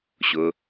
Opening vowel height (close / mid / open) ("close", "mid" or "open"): close